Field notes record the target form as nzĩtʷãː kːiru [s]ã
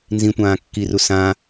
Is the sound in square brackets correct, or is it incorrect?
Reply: correct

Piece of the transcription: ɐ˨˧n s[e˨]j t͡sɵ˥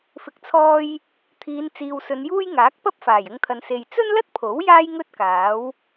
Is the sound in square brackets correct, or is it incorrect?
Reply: correct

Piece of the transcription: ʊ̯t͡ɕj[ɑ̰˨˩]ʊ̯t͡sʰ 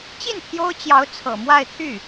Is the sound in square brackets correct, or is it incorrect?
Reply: incorrect: ɑ˧˥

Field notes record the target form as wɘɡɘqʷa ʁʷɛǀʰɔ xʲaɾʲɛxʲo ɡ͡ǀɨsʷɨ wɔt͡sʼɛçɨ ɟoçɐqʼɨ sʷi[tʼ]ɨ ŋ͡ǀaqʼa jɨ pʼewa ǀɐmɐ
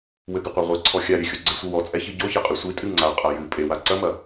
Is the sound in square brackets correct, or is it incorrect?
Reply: correct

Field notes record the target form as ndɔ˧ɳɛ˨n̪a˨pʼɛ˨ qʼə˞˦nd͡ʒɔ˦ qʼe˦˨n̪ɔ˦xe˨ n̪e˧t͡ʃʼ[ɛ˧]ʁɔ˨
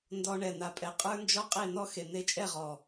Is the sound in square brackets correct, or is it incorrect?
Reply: incorrect: ɛ˦˨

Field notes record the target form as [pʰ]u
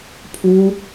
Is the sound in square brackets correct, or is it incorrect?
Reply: correct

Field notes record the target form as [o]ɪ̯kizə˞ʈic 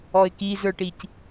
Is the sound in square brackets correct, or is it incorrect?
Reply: incorrect: ɔ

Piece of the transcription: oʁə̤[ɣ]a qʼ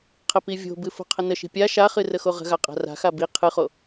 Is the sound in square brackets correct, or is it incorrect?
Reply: correct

